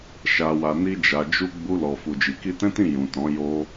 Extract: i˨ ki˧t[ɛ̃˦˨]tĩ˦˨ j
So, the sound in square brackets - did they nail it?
no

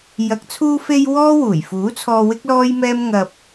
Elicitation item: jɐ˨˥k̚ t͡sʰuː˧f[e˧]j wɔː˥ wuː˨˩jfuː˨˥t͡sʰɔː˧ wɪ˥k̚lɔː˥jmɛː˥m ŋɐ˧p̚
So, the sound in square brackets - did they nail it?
yes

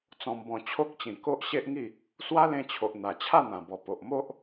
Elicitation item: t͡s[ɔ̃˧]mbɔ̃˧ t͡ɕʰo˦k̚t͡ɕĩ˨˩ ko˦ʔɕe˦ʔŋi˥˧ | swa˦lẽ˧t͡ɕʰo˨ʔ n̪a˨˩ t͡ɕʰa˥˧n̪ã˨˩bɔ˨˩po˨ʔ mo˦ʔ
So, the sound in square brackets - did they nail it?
yes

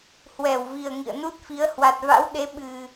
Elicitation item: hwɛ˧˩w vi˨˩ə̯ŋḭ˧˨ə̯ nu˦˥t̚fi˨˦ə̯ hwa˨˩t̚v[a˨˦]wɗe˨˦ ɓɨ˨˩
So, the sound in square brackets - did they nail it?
no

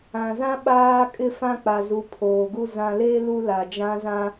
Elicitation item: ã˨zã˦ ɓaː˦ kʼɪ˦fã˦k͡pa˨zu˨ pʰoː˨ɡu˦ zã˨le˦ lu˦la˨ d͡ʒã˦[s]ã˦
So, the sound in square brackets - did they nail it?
no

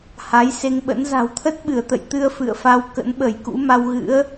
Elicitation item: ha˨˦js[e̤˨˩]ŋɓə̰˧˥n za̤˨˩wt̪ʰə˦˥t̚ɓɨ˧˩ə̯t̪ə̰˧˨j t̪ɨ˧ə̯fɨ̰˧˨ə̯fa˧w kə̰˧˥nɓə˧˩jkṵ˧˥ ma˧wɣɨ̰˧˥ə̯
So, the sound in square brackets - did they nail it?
no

